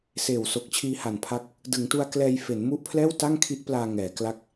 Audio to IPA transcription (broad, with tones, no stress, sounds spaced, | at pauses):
s eː˨˩ w s o˨˩ k̚ t͡ɕʰ iː˧ h a˨˩ n pʰ a˦˥ k̚ | d ɯ˩˦ ŋ t u˧ a̯ k l ɛː˧ j f e˩˦ n m u˦˥ ʔ pʰ l ɛː˥˩ w t a˥˩ ŋ kʰ i˦˥ ʔ p l aː˧ ŋ ɛː˩˦ k l a˥˩ k̚